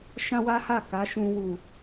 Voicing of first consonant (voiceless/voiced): voiceless